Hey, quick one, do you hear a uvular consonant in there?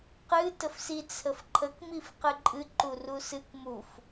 yes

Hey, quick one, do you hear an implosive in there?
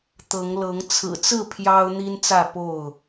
no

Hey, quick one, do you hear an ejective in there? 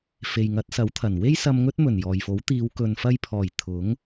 no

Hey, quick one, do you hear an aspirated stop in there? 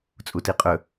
no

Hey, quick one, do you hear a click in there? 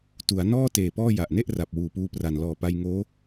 no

